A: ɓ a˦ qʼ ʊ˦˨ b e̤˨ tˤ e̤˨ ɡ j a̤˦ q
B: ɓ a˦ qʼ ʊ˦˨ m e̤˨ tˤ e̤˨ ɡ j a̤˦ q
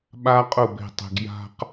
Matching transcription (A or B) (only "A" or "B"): A